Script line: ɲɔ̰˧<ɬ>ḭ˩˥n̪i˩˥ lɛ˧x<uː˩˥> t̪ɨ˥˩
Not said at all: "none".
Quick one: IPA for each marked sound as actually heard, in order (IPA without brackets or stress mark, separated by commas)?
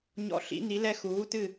ɬ, uː˩˥